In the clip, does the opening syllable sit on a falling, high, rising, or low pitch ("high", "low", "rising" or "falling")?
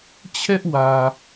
high